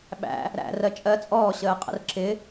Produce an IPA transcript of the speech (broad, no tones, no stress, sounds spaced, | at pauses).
ɓ æ̰ | ɾ æ̰ r ɜ t͡ʃʼ ɜ t͡sʼ ɔː ɕ əː qʼ ə̰ r ǁ ɪ